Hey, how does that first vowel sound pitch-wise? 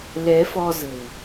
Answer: rising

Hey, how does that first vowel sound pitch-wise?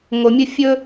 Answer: low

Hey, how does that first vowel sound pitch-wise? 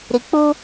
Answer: low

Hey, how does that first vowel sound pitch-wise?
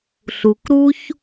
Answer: low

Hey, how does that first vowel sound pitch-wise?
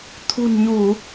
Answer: low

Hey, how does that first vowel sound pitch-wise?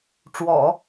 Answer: low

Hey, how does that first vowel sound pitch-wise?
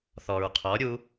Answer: low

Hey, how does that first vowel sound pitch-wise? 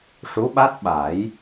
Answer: rising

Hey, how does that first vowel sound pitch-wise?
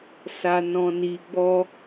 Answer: low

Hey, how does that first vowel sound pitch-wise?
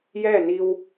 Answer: falling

